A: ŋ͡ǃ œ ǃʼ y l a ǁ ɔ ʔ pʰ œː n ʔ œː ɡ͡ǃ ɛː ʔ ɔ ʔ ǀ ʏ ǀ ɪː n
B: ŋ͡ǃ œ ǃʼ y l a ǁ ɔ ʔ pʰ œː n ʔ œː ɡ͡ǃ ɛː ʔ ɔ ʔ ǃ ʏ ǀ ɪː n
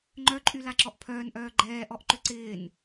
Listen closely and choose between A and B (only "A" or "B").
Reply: B